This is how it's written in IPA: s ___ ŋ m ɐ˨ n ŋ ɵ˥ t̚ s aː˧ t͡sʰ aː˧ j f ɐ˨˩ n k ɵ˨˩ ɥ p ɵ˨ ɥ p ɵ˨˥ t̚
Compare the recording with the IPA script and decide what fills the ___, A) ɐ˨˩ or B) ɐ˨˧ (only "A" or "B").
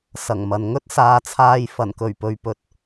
A